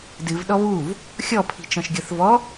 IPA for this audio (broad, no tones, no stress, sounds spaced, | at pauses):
d ɨ v ɗ ɔ β u v | xʲ ɔ pʰ i̤ t͡ʃ ɔ̃ ʃ ɡʲ ɤ θ v ɔ